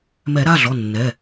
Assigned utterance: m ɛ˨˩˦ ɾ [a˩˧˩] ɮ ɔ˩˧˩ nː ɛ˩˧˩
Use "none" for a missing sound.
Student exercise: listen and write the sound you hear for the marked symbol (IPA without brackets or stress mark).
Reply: a˩˧˩